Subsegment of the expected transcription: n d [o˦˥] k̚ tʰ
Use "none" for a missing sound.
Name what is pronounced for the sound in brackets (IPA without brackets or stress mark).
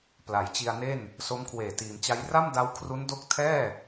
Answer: o˦˥